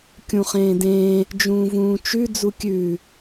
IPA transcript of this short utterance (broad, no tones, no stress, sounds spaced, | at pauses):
kʲ ũ χ ẽː d ẽː | d͡ʒ ũː v ũː t͡ʃ ʉ d͡z u kʲ ʉː